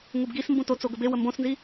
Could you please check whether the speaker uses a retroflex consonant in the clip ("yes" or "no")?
no